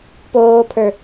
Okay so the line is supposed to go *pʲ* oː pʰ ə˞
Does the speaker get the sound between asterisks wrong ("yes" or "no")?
yes